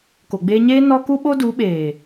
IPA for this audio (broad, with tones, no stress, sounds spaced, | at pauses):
k o˨ ɡ͡b eː˧ ɲ eː˦ n ɔ˦ k u˦ ɓ o˦ d u˨˦ ɓ eː˨